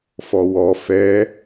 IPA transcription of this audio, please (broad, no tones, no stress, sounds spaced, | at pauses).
f ɔ w ɔ f ɛ